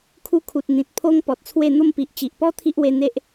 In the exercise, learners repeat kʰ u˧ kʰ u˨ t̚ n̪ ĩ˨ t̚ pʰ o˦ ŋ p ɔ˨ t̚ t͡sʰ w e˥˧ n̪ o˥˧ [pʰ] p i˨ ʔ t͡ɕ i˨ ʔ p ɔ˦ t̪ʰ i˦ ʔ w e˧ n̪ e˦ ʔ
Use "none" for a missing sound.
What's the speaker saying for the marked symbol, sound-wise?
m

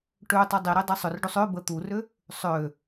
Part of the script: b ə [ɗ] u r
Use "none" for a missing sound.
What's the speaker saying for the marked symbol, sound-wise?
t̪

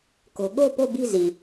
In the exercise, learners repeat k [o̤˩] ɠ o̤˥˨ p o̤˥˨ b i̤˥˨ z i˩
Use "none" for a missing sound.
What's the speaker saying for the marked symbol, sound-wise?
o̤˩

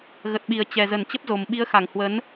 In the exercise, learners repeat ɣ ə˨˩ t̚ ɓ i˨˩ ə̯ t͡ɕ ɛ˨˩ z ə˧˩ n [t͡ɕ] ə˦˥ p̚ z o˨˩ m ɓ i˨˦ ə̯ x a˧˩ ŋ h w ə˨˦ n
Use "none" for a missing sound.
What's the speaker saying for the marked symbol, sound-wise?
t͡ɕ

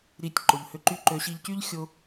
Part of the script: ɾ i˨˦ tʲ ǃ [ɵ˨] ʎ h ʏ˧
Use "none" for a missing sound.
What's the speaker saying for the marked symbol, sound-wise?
ʊ˨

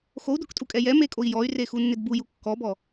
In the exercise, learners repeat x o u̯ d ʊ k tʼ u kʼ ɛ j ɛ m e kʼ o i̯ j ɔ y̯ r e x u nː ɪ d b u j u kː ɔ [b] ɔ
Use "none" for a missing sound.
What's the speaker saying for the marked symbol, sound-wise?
b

